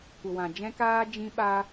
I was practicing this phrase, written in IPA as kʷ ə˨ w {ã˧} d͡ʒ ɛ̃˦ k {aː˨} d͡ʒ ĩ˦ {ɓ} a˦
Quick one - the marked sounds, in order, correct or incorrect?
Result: incorrect: ã˨, incorrect: aː˦, correct

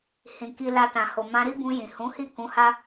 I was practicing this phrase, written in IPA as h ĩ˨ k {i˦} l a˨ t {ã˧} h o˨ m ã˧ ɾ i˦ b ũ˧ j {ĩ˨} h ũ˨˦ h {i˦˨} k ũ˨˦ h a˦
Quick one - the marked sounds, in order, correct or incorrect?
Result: incorrect: i˨, incorrect: ã˨, correct, correct

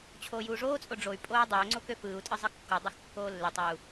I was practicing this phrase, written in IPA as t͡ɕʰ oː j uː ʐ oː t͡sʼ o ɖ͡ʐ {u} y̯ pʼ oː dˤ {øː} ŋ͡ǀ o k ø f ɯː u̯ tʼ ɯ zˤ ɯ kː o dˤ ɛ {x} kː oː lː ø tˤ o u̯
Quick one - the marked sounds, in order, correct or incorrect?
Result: incorrect: o, correct, correct

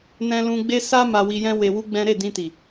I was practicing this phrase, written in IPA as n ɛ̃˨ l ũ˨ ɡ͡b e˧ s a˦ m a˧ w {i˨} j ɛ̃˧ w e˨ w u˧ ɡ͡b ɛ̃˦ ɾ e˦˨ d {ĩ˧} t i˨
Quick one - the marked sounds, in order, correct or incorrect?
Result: incorrect: i˧, correct

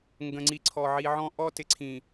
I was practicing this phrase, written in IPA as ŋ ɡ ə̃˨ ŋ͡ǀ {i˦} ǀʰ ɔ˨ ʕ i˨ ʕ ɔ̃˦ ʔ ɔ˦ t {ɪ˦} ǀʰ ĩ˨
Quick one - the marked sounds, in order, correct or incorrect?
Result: incorrect: i˨, incorrect: ɪ˨

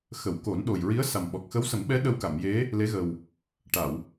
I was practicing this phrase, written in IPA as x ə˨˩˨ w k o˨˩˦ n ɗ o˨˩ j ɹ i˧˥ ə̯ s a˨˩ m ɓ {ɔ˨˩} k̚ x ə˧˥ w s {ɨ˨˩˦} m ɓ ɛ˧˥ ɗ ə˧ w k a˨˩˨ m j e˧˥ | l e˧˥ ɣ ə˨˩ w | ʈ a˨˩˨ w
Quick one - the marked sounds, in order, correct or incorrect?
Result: correct, incorrect: ə˨˩˦

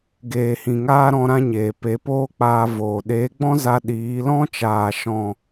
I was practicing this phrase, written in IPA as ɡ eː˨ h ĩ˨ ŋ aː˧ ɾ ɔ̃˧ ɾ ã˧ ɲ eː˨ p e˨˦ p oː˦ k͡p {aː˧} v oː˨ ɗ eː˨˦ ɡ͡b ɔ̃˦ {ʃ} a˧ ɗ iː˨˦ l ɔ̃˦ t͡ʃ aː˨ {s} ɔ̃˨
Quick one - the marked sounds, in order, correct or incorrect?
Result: correct, incorrect: z, incorrect: ʃ

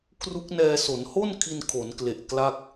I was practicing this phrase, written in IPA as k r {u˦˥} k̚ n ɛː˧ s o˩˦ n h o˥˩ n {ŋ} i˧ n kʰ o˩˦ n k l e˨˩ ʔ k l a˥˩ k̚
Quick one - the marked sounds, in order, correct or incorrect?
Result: correct, incorrect: kʰ

